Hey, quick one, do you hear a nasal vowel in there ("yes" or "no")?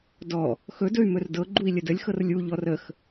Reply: no